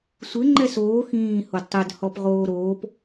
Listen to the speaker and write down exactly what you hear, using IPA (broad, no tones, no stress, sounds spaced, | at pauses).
sʷ ɪ ŋ͡ǃ ɛ s oː x ĩː h o d tˤ ɛ d h ɔ p ʁ oː ɾ oː p